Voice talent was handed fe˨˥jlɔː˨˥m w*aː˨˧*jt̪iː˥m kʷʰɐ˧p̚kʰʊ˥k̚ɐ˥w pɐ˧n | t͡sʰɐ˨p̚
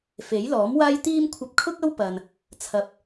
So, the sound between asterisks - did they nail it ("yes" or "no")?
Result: no